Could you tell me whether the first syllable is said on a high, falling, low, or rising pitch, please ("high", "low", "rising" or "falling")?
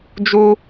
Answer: high